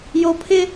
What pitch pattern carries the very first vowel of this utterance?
low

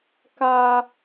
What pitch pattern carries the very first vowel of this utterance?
high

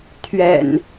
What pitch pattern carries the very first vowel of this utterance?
low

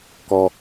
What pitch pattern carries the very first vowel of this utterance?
high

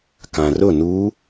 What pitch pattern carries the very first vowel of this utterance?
low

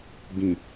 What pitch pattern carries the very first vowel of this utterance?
low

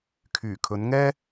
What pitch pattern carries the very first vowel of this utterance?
low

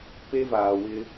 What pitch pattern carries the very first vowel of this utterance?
high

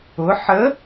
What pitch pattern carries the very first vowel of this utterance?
rising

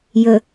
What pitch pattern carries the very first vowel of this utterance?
low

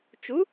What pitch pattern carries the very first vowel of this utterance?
rising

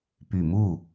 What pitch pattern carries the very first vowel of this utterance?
low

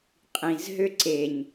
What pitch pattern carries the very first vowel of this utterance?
low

